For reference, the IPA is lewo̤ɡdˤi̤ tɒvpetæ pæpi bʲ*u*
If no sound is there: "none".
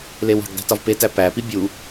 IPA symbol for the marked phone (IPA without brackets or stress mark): u